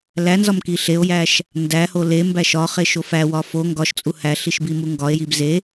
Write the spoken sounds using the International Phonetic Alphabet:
lænzɒm kiɬeo̯jæʃ | ndæho lembæʃ ɒχeʃ ofæwɒ fo ŋɡɒʃt͡sʼu hæɬiʃ bimuŋɡɒe̯jib ze

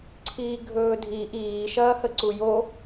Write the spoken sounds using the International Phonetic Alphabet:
ǀʰiːɡʱɵːdʱi ʔiː ʃɐːhəǀujo

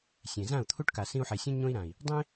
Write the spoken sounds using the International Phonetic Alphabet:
sʲẽ˨zã˦˨u̯ t̪ʰu˦ʈka˨ sĩ˧u̯ħe˨sʲõ˦ ɲõ˧i̯ɾã˨i̯ | dˤẽ˦

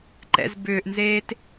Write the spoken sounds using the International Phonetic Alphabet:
ǃɛ̰z bʏːʔnzeːt

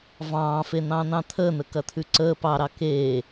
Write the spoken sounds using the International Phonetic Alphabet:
vɑ̃ːfen̪ɑ̃ːn̪ɑ̃ t̪ʰəːn̪əkɐt̪ʰʉ ǀəː pɑɾɑ keː

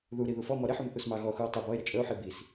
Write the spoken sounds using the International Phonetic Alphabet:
ðu ɾiðufɔmɔ ɾeħum θusmɑɣɔxuo̯ tˤə bɔe̯ɾə t͡ʃʼəo̯ħi bis

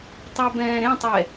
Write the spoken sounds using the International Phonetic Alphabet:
tˤabɛ̃ːɾẽtˤɛ

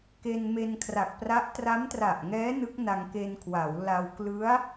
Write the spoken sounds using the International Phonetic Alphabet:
ke˧nme˧nkʰra˨˩k̚pra˦˥ʔ tra˦˥mtra˨˩ʔŋɛː˦˥ nɯ˦˥k̚na˧ŋke˧nkʰwa˩˦w la˧w klɯ˦˥a̯

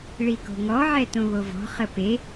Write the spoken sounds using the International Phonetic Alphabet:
ɭiko̤ŋɔ ʕɛtõβovɔ̤ χəpe

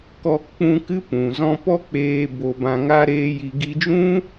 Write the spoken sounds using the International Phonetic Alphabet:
kɔ˧ k͡pũ˧ kɨ˦ pũ˨zɔ̃˦ pɔ˦k͡peː˧ bo˧ bã˧ŋa˦ ɾeː˦ji˧ ɡi˧d͡ʒũ˦

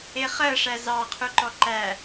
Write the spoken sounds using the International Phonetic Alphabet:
eχɜʂæ zɑqʰuǃɔ ǃæ

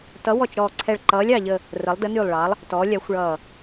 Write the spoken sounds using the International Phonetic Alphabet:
tʌ˩˧wɔ˨˩t͡ʃɾɔː˨˩ǀʰɛ˨˩ɭ ǃʌː˩˧lʲɑ˨˩ʎə˨˩ | rə˩˧lˠdə˩˧nyː˨˩lˠɭɑ˩˧lˠ | tɔː˩˧lʲa˩˧xʷɭʌː˨˩

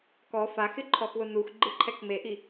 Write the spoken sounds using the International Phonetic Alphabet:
kɔ faxɪǃʰɔxwʊ nuxɡ͡ǃɪǃʰɛk meʔi

